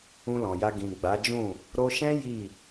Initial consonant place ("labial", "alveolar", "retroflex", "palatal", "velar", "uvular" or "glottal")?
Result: alveolar